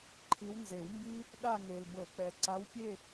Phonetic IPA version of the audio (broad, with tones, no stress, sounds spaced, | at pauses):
ǃʰ i˨˦ w n z e˨˩˦ w m b i˦ | ɗ a˦˨ ŋ e˨ l b ɤ˨˩˦ k͡p ɛ˨ ǀ a˨˦ w pʲ e˦˨